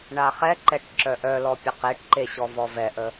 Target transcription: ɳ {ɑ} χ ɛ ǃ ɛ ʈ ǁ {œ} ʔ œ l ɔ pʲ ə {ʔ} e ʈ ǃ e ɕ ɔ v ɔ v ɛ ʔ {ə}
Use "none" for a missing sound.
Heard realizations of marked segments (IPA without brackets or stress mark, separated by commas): a, œ, q, ə